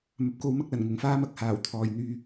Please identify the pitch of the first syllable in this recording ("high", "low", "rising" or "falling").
low